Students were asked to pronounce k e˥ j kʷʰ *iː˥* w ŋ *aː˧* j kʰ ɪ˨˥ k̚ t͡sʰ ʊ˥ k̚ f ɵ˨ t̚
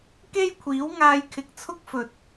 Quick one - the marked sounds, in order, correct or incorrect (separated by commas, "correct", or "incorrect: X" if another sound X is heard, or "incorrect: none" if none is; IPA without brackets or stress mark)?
incorrect: iː˨˥, correct